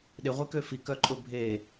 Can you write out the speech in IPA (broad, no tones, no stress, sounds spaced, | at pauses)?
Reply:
ɗ ɪ ʁʷ e k ø f i k œ ǃʼ ʊ bʱ e